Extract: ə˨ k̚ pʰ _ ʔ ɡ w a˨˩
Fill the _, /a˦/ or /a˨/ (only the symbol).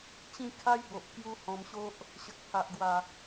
a˨